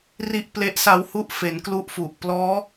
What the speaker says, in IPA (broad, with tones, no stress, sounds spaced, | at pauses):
r i˦˥ ʔ p l e˦˥ ʔ s a˦˥ w h u˥˩ ʔ f e˩˦ n k l u˦˥ ʔ f u˨˩ ʔ p l ɔː˦˥